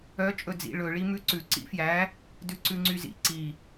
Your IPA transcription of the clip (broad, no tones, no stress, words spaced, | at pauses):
œ t͡ʃʼɵd͡zḭ ɭɵ ɭimʉǀʉ ǀḭfjæ | dʉǀʉŋ͡ǀyzḭ ǀi